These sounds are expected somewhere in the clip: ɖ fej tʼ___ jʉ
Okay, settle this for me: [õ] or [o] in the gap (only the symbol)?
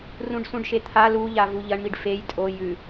o